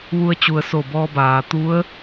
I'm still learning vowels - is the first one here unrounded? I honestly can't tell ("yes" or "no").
no